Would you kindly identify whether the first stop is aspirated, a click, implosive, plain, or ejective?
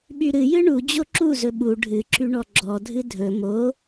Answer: implosive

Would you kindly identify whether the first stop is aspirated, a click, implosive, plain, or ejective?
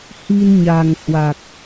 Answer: plain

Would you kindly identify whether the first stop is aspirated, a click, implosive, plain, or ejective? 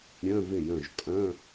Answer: ejective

